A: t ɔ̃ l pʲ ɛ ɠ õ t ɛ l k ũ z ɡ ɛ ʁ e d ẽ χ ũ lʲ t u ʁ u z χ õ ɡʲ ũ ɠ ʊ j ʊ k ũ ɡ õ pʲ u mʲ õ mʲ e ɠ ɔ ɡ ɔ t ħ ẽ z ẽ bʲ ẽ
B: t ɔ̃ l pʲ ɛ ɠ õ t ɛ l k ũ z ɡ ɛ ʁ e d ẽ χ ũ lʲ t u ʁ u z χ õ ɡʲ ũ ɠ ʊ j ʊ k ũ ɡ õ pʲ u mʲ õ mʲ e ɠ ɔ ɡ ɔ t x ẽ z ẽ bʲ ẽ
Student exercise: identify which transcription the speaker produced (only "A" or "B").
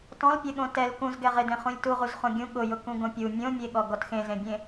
B